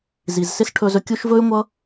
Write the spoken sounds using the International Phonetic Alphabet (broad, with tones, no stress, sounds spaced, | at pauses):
z i˨ z s ɪ˦ s ʈʰ ɵ˧ z ɵ˧ kʲ u˦ ʃ v ɵ˦ y̯ ŋʷ ʌ˦